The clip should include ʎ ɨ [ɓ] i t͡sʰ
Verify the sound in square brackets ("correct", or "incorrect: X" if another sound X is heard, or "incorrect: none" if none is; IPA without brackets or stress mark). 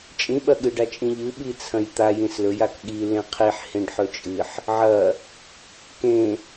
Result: correct